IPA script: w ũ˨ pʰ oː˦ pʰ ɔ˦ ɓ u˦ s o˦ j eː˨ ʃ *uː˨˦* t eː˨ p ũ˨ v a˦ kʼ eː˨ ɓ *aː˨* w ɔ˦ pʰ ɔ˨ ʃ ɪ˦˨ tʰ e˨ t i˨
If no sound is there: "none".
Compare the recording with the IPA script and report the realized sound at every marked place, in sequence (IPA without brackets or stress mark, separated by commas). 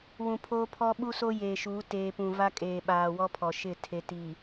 uː˨˦, aː˨